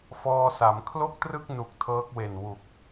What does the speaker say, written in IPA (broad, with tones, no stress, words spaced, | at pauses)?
fɔː˧sa˩˦m kʰlo˥˩k̚trɯ˥˩k̚ nu˨˩k̚tʰɤː˦˥k̚we˨˩n wu˨˩k̚